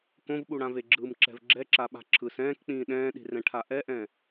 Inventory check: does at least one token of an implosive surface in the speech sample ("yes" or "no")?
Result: yes